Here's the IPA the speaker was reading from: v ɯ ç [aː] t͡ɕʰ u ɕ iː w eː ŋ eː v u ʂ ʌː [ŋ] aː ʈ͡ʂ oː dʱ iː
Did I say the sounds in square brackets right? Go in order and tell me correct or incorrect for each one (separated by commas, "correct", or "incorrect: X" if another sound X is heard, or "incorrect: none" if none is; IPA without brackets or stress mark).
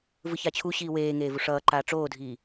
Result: incorrect: a, incorrect: ǃ